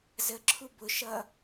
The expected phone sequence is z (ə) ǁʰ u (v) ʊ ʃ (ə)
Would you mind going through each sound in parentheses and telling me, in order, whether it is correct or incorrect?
correct, incorrect: b, incorrect: ʌ

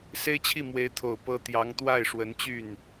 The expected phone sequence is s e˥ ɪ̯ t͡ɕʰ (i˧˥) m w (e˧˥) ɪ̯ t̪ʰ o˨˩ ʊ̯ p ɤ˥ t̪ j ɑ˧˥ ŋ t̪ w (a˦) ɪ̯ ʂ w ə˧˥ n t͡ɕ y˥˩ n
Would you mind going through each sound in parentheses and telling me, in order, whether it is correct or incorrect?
incorrect: i˥˩, correct, incorrect: a˥˩

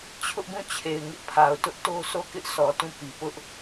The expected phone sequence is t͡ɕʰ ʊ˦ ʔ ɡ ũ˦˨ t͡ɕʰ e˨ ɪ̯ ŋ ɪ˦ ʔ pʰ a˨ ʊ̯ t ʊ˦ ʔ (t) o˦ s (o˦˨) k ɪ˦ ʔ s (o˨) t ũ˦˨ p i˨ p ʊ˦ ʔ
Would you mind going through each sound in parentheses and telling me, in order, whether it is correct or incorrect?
correct, correct, incorrect: ɔ˨

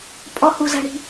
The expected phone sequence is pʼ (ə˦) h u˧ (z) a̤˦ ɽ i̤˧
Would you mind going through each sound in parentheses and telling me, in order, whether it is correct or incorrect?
incorrect: ɔ˦, correct

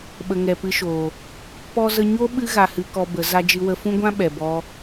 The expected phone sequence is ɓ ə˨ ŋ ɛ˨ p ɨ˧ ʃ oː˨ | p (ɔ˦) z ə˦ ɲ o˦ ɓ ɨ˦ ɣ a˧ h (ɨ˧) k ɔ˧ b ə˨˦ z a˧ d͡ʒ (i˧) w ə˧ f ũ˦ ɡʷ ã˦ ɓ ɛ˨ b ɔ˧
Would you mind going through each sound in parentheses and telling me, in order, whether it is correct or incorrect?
correct, correct, incorrect: ɨ˧

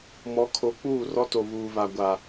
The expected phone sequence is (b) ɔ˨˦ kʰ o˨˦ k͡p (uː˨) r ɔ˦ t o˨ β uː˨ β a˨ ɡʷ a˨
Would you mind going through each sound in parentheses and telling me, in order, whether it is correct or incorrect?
incorrect: m, incorrect: uː˦˨

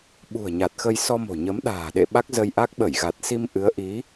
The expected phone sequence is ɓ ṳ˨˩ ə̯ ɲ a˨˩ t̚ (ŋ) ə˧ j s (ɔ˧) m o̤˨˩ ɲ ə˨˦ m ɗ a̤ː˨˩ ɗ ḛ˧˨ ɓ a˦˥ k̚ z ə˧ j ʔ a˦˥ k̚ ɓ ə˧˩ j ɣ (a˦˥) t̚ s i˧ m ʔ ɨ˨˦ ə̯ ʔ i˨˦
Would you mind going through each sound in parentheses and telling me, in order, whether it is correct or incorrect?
incorrect: x, correct, incorrect: a˨˩

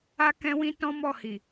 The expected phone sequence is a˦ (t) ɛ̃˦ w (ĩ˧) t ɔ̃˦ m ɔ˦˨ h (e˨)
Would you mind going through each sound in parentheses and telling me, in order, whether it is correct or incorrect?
incorrect: k, incorrect: ĩ˦, incorrect: i˨

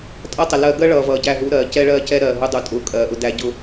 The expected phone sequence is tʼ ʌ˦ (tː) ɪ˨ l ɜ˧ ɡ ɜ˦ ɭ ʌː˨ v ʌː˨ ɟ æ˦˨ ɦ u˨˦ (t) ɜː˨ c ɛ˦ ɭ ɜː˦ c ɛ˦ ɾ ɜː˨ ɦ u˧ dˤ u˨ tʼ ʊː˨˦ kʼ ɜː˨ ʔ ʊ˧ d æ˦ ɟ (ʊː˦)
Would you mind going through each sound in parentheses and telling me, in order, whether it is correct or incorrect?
incorrect: tˤ, incorrect: ɾ, incorrect: ʊ˦

